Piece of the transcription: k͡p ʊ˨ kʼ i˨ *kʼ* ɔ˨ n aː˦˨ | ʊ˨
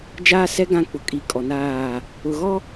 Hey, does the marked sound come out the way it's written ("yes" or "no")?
yes